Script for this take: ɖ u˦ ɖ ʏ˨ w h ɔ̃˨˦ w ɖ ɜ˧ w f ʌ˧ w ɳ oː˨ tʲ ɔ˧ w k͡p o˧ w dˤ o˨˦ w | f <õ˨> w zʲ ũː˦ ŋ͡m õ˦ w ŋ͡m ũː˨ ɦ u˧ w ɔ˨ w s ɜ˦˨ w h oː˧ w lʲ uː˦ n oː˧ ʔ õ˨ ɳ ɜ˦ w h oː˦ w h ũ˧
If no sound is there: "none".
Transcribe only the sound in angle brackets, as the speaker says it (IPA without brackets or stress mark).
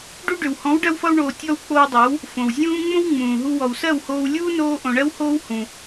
õ˨